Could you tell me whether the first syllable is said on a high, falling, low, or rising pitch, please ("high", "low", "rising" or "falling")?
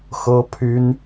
high